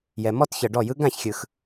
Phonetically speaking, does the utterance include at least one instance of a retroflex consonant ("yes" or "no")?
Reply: yes